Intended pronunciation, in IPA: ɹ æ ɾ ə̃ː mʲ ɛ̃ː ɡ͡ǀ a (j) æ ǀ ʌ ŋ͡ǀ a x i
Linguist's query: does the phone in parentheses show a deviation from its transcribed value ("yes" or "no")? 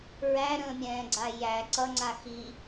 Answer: no